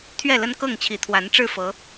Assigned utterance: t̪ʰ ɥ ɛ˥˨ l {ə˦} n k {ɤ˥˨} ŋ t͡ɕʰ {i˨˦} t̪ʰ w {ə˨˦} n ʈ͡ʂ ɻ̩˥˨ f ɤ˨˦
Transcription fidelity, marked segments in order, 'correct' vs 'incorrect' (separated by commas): correct, correct, correct, incorrect